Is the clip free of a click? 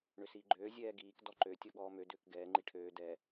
no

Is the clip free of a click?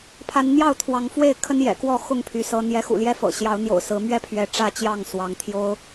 yes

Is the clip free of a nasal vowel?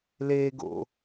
yes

